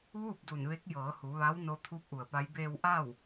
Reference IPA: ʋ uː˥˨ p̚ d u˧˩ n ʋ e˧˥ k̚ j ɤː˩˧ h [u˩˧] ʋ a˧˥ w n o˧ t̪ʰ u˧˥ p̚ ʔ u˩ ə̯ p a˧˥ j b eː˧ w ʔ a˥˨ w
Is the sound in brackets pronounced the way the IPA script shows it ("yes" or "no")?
yes